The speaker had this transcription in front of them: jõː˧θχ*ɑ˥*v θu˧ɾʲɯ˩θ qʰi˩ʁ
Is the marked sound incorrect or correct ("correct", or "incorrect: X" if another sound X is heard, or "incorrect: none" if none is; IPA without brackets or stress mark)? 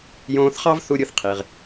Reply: correct